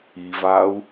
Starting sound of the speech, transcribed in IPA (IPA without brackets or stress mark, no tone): i